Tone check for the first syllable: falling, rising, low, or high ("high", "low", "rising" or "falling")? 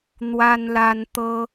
high